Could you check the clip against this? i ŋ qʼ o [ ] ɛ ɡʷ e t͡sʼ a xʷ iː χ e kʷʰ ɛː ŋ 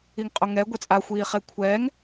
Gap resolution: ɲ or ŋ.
ŋ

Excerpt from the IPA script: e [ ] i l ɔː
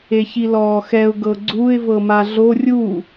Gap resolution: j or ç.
ç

